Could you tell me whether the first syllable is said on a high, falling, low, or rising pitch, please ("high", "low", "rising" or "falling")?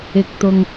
low